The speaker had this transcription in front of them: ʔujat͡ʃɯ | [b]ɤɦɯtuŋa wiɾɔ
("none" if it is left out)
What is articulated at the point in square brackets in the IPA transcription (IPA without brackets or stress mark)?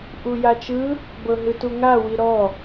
b